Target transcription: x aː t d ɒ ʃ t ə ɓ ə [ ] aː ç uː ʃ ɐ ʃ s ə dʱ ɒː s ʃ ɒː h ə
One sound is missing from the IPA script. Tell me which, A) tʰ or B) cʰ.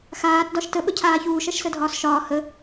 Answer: B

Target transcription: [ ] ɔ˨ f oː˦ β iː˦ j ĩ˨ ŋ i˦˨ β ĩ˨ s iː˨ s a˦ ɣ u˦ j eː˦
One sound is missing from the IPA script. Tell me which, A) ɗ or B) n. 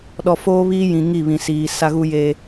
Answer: A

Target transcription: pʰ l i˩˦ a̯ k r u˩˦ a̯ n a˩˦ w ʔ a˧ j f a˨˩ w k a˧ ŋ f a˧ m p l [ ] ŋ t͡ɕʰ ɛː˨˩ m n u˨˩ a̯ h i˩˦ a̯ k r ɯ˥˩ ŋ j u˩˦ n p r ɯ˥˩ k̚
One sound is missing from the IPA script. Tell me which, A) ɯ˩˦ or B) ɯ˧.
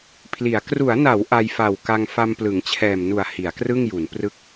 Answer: A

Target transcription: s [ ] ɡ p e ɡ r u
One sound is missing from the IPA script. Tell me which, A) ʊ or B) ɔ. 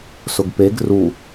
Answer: A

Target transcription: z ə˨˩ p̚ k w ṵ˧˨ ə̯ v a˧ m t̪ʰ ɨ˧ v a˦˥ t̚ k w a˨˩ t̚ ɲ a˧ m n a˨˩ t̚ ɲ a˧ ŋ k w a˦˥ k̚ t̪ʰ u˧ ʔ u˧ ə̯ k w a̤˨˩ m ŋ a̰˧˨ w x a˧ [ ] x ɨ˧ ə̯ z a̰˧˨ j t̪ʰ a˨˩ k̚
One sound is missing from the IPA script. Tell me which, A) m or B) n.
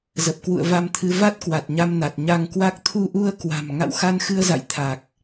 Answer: B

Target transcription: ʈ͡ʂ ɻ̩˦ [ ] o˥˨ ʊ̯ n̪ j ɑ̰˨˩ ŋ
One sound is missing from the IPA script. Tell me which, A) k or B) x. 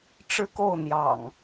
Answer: A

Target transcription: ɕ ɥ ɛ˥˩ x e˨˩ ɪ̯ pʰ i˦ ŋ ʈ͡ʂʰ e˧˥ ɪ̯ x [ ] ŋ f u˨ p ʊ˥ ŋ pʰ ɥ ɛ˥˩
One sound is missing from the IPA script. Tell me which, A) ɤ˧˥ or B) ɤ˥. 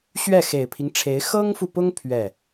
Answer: B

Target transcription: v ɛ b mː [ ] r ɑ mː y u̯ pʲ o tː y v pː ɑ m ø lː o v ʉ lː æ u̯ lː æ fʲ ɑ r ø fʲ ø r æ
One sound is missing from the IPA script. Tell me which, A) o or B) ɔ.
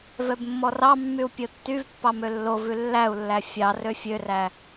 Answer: B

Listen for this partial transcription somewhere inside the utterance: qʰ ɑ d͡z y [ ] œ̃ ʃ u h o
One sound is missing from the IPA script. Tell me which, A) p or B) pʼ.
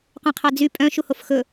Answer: B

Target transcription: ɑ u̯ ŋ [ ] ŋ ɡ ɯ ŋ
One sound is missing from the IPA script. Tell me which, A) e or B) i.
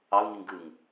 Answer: B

